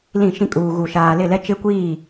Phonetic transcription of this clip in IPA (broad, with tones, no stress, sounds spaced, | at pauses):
l ĩ˦˨ ʃ ĩ˦ kʼ uː˨ ɣ u˨ ʃ aː˨ l ɪ˦˨ l ɛ˦ t͡ʃ ɪ˦ kʷ iː˦˨